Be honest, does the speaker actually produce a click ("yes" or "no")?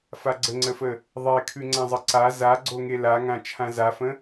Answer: yes